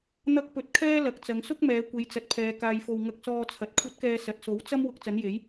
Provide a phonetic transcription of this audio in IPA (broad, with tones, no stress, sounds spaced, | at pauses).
n̪ ɐ˥ k̚ p ɵ˧ t̚ kʰ ɛː˥ l ɐ˨ k̚ t͡s ɐ˨˧ ŋ s ʊ˥ k̚ m ɛː˨˧ kʷ e˨˧ j t͡s ɐ˨ t̚ pʰ ɛː˨ k aː˧ j f o˧ w ŋ ɐ˧ k̚ s ɔː˧ t͡sʰ ɐ˨ t̚ kʷʰ ɐ˨˥ t̚ k ɛː˨ s ɐ˨ t̚ s o˨˥ w t͡s ɐ˥ m w ʊ˧ k̚ t͡s ɐ˨˥ n j e˨˥ j